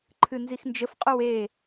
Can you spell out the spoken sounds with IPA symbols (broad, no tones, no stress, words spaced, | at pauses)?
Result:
ǃʰɨnzixnd͡ʒəfqʼow e